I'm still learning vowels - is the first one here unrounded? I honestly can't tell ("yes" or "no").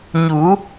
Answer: no